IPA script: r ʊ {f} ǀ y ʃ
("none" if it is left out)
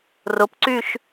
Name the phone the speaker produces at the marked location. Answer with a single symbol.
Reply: p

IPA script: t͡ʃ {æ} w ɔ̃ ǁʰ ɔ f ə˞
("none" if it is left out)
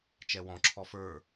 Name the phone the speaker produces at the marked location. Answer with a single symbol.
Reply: ɛ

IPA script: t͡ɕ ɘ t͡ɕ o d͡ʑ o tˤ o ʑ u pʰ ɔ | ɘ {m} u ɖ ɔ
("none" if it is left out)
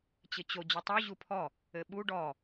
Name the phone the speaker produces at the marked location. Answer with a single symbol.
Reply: ɓ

